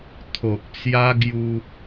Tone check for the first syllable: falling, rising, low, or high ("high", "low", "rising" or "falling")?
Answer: low